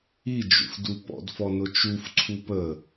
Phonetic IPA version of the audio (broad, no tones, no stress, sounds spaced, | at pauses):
i d͡ʒ ṵ f d u p ɔ̰ d f ɔ n ʊ t͡ʃ u f ǀʰ u p ə